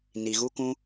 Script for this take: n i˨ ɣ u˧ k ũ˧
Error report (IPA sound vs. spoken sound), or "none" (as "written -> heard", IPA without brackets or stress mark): none